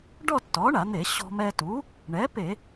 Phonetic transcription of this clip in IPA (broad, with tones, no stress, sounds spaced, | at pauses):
ɖ ɔ˥˧ tː ɔ˩˥ ɳ a˧˩˧ n̪ e˧˩˧ ɕ ɔ̤˧ m ɛ˧ t u˩˥ | ɳ ɛ˩˥ p e˧˩˧